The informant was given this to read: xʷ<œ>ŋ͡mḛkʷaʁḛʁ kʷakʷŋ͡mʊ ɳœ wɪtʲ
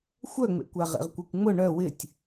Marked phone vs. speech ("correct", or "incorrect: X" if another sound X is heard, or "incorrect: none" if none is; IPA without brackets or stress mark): correct